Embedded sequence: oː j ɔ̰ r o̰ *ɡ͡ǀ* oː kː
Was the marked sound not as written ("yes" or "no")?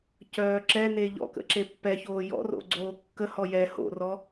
no